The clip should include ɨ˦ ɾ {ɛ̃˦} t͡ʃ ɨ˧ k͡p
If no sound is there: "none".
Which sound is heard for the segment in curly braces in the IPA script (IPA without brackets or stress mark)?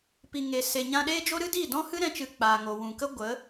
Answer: ɛ̃˦